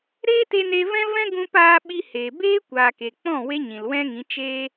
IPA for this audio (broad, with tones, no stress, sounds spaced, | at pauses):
ɾ eː˦ t e˧ n e˧ v ɛ̃˦ v ɛ̃˦ ɡ ũ˧ p aː˧ ɓ i˧ h eː˨ b eː˦ kʷ aː˨ k e˨ k͡p ɔ̃˦˨ w e˦ ɲ ĩ˨ l w ɛ̃˦ ŋ ĩ˨˦ t͡ʃ eː˧